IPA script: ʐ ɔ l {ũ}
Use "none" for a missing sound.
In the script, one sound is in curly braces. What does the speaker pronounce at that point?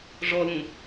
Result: ũ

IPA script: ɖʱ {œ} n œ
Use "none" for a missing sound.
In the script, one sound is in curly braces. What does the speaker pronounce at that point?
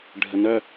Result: ə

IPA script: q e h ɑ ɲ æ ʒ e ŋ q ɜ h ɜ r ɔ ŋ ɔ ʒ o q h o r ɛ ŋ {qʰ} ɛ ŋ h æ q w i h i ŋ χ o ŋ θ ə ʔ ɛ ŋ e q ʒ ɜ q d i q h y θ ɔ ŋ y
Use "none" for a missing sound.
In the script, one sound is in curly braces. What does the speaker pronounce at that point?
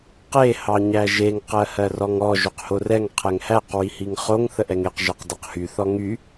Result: qʰ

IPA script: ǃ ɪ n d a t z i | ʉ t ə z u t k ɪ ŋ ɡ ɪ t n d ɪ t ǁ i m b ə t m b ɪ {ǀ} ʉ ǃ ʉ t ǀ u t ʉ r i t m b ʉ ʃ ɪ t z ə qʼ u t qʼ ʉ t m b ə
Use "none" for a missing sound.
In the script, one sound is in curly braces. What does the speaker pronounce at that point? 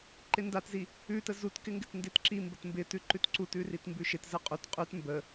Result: t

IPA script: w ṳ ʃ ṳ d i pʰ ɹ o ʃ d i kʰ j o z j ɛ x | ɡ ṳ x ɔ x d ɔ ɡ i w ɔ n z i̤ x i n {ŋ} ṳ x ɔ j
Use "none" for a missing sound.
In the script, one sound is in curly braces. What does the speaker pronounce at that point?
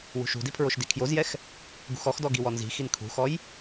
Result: kʰ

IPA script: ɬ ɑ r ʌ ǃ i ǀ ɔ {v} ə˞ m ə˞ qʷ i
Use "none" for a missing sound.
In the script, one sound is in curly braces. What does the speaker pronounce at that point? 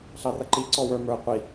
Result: w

